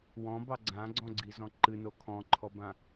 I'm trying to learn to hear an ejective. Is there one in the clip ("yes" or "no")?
no